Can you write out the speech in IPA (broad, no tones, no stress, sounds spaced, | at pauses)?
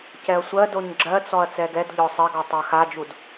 c ɛ ɐ̯ sʷ ɜ d o ɲ ɡ͡ǁ ɜ t͡s ɔ ɐ̯ t͡s ɛ ɡ ɛ d ʎ ɔ sˤ e ɡ ɔ tˤ ɜ x a d͡ʒ u d